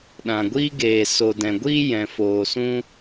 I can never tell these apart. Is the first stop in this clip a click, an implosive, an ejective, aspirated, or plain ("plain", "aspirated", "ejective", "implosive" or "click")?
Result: implosive